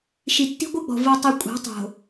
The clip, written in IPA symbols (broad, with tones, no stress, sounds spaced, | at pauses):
ʃ i˨ tː i̤˦ ɡʷ ɯ˦ ɡ͡b ɔ̤˨ v ɤ˦ tˤ ɤ˦ kʷʼ a̤˨˦ tˤ o̤˨